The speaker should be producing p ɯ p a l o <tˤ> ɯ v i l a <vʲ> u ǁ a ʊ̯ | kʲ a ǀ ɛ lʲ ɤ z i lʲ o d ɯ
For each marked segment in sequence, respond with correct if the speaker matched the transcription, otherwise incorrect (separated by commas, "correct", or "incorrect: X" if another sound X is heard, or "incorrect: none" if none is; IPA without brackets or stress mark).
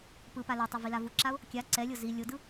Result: correct, incorrect: v